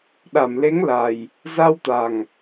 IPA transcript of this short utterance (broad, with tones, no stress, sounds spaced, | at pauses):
ɗ a˧˩ m l e˨˦ ŋ l a˨˩ j | z a˧ w t̪ a˨˩ ŋ